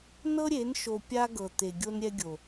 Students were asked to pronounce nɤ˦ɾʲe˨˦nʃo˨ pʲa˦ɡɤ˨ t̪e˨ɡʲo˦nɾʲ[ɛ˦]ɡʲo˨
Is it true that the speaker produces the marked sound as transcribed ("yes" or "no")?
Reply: yes